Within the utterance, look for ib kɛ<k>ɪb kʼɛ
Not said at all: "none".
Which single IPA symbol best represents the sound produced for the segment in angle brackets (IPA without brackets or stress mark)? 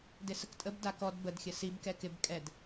k